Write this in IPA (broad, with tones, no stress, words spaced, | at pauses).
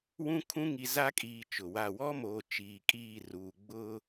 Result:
wũ˦kʰũ˦ ŋi˨za˦kʼiː˨ t͡ʃʊ˨wa˦˨ wɔ˦moː˨ t͡ʃiː˨kʼiː˦˨ruː˨ ɡ͡bʊ˦